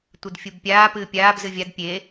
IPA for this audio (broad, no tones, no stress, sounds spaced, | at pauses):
tʷ ɨ d fʲ u b pʲ aː p ɨː pʲ aː b z ɨ vʲ a d pʲ e